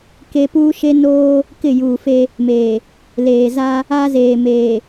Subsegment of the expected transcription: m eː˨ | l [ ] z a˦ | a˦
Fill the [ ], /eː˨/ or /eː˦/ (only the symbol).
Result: eː˨